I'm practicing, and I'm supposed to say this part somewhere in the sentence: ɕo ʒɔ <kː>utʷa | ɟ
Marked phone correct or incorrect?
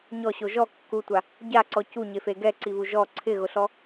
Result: correct